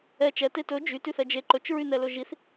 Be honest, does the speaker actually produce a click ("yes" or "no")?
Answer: yes